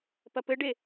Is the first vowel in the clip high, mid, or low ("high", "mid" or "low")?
low